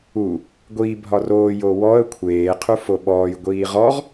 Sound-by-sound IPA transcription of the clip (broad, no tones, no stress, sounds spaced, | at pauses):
u | ɡʷ iː bʱ ɒ r oː j o w ɔ ə̯ kʷʰ eː qʰ u f o ɓ ɔː j ɡʷ iː ʁ ɔ ʁ